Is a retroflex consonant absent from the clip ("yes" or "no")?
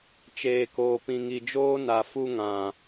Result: yes